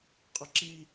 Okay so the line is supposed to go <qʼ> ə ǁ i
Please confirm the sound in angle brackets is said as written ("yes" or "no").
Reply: yes